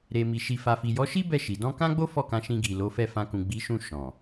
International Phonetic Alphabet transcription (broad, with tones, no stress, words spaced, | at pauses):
ɾe˨ mi˨ʃi˨fa˨ fi˨jɔ˨˦ʃi˦ bɛ˦˨ʃi˨ dɔ̃˧kã˦ɡ͡bo˦ fɔ˦˨kã˨˦ʃĩ˧ ɡi˨lo˨˦fɛ˦˨ fã˧ kũ˨ɡ͡bi˨˦ʃũ˦˨ ʃɔ̃˨